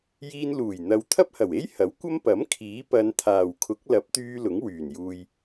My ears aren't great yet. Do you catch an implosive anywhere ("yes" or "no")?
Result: no